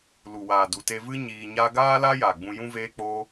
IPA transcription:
l u˨ w aː˨ d u˨ t e˧ v ɨ˦ ɲ iː˧ ɲ a˦ ɡ aː˦ l a˦ j a˨ ɡ͡b ũ˧ j ũ˦ v eː˦ k͡p oː˦

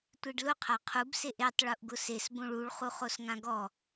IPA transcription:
tʷ e ɖ l ʊ qʰ a qʰ u b s e ʔ e tˤ ɭ u ʔ ɡ ʊ s e s b õ ɭ u ɭ χ u χ o s ŋ ã ɡ ɔ

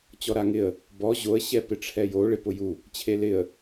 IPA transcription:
t͡ɕ ɔ ɾ a ŋ ɪ ə̯ | b ɔ ʑ o ə̯ ɕ ɛ p ɪ ʈ͡ʂʰ ɛ j o ɭ ɪ p ʊ j u | t͡ɕʰ e l ɪ ə̯

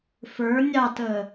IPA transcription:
f ə˞ nʲ ɑ t əː

